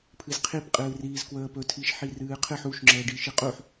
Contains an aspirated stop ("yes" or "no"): yes